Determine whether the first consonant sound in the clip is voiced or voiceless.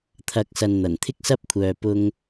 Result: voiceless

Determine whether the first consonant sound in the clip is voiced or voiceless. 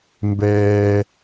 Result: voiced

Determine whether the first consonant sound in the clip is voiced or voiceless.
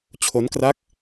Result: voiceless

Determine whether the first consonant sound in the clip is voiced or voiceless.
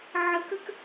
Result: voiced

